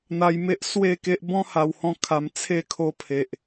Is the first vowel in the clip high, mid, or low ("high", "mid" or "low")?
low